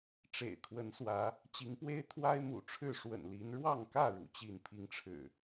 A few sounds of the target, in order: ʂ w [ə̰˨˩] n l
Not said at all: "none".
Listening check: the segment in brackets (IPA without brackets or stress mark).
ə̰˨˩